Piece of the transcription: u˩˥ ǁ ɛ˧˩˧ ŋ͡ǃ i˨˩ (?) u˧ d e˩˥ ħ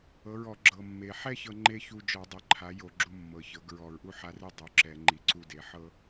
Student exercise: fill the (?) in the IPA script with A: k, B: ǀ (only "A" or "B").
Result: B